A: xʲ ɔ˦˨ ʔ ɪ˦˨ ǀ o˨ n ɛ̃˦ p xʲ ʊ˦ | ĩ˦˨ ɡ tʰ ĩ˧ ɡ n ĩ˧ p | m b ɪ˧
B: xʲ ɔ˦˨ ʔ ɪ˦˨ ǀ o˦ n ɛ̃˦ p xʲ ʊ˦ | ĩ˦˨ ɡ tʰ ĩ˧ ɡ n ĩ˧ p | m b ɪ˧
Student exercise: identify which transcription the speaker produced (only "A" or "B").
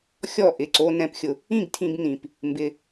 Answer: B